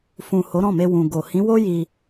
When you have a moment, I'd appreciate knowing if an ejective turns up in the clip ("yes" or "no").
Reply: no